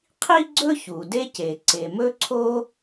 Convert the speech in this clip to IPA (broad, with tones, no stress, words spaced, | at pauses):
qʰi˥ɡ͡ǀɵ˥ çu˩de˥ce˩ ǀe˩mɵ˥ǀʰo˥